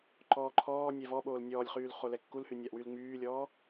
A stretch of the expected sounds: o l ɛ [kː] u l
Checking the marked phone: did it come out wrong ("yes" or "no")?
no